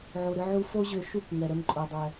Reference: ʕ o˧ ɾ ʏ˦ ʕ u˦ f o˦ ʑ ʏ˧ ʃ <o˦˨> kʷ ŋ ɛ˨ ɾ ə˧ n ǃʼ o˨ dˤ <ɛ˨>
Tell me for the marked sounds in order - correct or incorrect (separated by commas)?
incorrect, correct